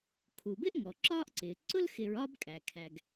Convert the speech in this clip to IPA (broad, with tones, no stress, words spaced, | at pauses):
kʰu˩bɪ˥ʔ ŋɔ˩ǁɒː˥ʔǀɪː˩ ǀʊ˥lxɪ˨ɹɒː˦bkʼæ˩ kʰæ˩ɡ